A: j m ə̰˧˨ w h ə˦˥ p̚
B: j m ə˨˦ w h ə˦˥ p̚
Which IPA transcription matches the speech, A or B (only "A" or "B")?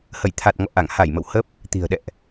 A